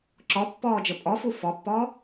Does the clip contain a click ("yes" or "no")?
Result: yes